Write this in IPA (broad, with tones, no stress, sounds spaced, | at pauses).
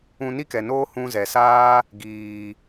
ũ˧ n i˦ k ɛ˨ n oː˦ h ũ˧ z ɛ˨ s aː˦ | ɡ iː˨